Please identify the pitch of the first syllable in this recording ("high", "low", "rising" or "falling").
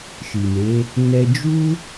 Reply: low